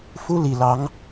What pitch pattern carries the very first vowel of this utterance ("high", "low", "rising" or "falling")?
high